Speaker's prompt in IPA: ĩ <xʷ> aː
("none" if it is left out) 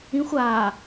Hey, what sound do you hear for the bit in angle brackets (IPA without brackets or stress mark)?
xʷ